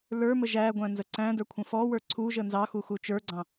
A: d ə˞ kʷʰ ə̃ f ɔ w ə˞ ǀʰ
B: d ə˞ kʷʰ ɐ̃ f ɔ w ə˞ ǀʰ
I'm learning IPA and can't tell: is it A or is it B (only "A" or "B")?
A